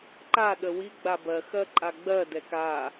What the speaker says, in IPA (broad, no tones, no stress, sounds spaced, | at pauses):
ǃ a ɗ ə w i ɡ͡b a b ɜ x ɜ ǃʼ a ɡ͡b ɜ d ɛ k a